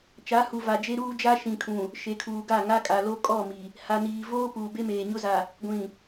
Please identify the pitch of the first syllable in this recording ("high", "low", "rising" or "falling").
rising